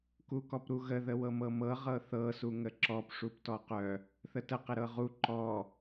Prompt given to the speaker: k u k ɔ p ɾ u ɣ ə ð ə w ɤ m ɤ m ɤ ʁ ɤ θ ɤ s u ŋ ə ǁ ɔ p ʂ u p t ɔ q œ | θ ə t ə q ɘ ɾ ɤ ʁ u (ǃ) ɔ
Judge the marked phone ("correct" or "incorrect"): correct